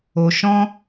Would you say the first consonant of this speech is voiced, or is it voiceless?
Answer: voiceless